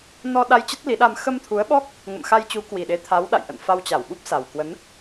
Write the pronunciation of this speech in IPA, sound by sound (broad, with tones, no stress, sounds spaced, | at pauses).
n ɔ˧ ɗ a˧ j t͡ɕ ə˦˥ t̚ l i˨˦ ɗ a˧ m x ə˧ m t̪ʰ u˨˦ ə̯ ɓ ɔ˦˥ k̚ | ŋ ə̰˧˨ m x a˧ j t͡ɕ u˨˦ k w i˨˩ ɗ e˨˦ t̪ʰ a˨˦ w ɗ a̰˧˨ j ʔ ə̰˧˨ n f a˧ w t͡ɕ a˧˩ w ɓ u˦˥ p̚ s a˨˩ w k w ə˨˦ n